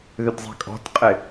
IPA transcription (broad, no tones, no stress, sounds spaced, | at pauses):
ð ʏ d zˤ e̤ kʼ ɔ̤ t qʼ ɪ